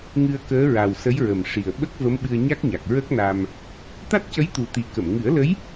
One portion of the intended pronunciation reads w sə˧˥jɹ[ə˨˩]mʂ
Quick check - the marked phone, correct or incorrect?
correct